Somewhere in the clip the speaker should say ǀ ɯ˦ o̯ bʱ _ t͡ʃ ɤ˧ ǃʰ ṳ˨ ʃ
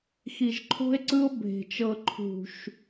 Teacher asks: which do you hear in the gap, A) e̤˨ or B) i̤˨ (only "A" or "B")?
A